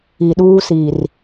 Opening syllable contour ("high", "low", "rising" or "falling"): low